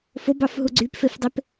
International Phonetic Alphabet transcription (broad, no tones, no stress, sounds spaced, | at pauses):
f o b ɑ f ɦ u ɡ͡ǀ y p f e f dˤ e p